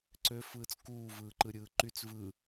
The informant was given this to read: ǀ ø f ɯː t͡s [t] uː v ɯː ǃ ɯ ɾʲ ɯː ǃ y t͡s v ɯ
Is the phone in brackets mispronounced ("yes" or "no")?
yes